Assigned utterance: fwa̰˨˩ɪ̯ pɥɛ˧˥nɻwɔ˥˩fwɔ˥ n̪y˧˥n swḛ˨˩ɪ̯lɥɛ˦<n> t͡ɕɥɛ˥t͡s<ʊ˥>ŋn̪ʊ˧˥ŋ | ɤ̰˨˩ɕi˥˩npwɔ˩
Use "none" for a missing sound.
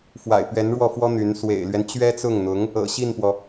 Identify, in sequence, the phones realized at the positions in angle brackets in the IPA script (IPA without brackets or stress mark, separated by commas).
n, ʊ˥˩